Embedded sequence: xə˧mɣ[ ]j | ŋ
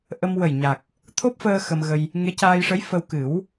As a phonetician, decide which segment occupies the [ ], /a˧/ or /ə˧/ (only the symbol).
ə˧